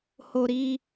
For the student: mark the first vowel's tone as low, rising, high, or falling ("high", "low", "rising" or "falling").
high